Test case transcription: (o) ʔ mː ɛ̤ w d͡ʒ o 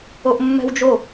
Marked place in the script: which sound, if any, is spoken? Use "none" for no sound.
o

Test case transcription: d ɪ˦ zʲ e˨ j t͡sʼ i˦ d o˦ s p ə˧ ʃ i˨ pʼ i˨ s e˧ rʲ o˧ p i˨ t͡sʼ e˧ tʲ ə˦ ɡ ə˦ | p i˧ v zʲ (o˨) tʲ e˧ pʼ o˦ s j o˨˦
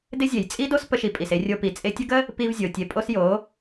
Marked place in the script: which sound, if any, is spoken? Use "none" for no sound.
o˨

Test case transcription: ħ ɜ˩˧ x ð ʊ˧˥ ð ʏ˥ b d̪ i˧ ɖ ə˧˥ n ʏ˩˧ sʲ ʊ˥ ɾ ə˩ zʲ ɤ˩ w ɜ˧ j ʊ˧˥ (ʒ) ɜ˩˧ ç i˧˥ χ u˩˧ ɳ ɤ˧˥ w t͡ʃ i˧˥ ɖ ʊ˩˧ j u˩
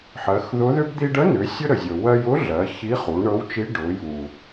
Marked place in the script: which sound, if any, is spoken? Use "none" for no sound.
ɮ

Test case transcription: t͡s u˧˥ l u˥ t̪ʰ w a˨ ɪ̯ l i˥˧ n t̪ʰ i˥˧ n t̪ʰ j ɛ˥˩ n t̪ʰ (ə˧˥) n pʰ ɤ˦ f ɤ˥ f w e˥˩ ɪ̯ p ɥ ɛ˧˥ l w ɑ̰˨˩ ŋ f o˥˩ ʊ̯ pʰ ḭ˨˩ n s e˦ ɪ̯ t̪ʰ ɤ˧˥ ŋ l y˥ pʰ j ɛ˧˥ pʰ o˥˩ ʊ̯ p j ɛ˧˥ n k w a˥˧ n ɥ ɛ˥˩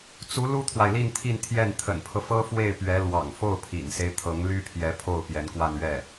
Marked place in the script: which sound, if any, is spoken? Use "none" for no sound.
ə̰˨˩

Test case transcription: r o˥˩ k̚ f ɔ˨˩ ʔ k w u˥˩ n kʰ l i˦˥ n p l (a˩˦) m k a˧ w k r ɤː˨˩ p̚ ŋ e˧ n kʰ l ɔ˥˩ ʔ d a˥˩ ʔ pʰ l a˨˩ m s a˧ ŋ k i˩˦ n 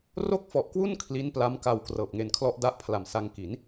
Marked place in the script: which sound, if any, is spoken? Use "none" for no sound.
a˦˥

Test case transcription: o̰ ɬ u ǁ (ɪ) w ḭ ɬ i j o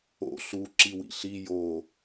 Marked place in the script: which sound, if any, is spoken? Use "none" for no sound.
i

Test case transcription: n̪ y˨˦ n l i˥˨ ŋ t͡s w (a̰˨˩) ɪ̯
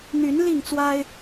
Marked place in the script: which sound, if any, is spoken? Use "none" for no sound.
a˦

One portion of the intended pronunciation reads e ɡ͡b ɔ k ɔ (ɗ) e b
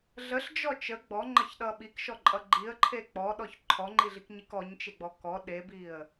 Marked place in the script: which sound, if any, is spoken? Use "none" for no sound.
ɗ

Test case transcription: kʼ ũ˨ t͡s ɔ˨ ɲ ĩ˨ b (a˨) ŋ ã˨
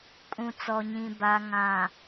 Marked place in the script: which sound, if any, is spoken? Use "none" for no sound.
a˨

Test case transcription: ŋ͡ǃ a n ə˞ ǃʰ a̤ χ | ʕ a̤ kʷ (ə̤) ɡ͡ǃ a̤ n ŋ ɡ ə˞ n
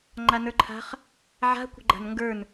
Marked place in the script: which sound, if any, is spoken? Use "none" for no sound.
ə̤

